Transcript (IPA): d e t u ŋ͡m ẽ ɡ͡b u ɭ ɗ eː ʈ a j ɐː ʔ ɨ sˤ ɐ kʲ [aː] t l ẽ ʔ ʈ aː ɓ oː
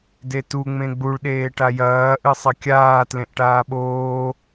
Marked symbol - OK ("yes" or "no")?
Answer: yes